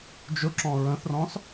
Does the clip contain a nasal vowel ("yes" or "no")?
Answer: yes